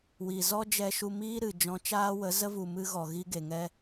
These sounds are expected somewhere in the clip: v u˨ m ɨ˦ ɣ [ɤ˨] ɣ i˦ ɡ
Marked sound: incorrect: ɔ˨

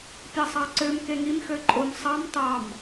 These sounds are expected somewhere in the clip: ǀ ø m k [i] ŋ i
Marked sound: incorrect: e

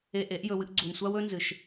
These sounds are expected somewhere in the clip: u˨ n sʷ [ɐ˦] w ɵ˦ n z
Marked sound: incorrect: a˦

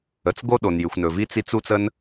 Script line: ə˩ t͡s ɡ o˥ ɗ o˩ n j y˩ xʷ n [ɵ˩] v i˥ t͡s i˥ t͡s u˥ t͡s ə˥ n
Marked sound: correct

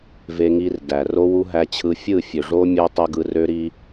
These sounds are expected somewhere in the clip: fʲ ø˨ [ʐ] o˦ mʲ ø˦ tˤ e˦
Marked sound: correct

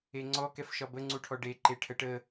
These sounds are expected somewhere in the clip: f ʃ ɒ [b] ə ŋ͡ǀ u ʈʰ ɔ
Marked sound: correct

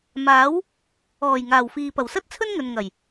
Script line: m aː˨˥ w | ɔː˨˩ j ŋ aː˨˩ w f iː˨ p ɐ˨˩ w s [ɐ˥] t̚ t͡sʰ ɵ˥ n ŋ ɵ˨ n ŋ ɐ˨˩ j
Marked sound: correct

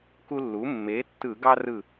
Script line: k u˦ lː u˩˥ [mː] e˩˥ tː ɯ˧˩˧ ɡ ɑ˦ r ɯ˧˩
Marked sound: correct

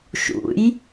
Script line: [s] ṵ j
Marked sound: incorrect: ʃ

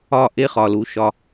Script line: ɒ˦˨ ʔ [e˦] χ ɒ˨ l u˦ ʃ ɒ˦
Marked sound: correct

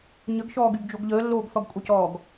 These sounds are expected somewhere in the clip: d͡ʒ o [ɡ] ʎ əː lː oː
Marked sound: correct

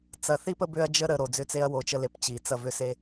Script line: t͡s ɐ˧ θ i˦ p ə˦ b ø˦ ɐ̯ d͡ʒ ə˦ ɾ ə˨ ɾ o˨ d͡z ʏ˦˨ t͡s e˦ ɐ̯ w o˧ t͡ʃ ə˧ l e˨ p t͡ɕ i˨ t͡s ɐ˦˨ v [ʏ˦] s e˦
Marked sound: correct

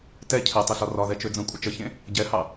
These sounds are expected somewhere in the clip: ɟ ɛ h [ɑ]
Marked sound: correct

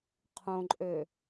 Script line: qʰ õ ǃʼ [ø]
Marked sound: correct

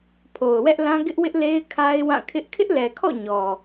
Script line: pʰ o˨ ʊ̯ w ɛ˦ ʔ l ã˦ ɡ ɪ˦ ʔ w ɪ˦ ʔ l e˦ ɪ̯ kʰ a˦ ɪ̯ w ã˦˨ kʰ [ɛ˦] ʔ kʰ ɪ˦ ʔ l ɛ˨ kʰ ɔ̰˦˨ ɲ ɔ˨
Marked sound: incorrect: ɪ˦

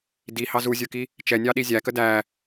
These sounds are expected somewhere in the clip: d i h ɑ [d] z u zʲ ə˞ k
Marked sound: incorrect: none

